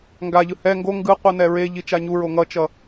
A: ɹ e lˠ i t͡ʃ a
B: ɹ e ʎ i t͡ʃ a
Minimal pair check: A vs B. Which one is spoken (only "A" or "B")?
B